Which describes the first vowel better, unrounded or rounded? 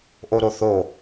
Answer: rounded